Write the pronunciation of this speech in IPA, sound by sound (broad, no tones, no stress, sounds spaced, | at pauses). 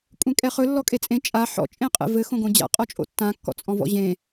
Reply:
kʷʼ ẽ kʼ ɛ χ ɵ lː ɔ kʼ e t͡sʼ ẽ t͡ʃʼ a ħ ɔ̰ t͡ʃʼ ẽ qʼ ɛ̰ v ɘ x õ ɡ õ d͡ʑ a̰ qʼ ɔ t͡ʃʼ o̰ tː ã kː ɔ̰ t͡sʼ ɔ̃ v ɔ̰ ʑ ẽ